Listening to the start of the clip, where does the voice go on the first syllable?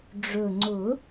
low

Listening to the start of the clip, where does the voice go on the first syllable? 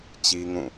high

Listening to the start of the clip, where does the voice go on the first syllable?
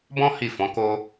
high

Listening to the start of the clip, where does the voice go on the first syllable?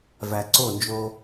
low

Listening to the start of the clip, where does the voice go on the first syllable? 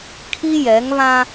high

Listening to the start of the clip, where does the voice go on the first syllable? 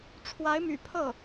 rising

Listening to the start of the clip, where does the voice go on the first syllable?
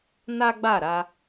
high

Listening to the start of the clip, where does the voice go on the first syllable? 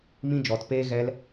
high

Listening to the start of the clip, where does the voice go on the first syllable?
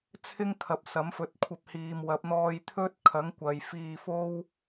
high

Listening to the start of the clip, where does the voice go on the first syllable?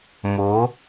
rising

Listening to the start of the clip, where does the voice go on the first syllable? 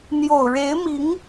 low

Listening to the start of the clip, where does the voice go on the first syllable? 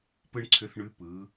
high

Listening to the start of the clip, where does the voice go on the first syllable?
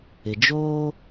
low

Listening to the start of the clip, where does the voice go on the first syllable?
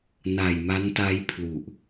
low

